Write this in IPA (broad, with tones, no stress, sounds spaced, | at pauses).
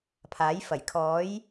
pʰ aː˨˥ j f ɐ˨˩ j kʰ ɔː˨˥ j